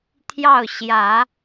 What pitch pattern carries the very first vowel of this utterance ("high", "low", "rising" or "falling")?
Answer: falling